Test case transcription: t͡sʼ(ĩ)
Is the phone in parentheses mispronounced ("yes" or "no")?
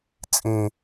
no